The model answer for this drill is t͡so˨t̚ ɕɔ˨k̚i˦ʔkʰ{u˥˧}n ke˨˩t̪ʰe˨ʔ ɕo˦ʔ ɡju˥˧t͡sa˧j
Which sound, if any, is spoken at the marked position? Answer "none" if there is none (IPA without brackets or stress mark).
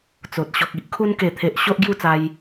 u˦